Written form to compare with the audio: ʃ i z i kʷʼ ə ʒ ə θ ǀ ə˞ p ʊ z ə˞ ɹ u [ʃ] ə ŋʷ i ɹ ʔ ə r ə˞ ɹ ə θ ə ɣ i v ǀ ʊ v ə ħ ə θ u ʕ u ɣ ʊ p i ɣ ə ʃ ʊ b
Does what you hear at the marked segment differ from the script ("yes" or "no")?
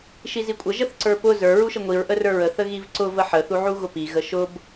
no